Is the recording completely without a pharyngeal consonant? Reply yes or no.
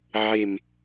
no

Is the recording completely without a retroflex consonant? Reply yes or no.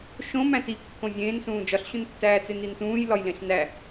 yes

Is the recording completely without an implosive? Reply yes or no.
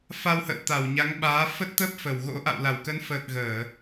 no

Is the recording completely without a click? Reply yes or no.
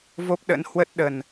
yes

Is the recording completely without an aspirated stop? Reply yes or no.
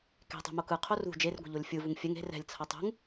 no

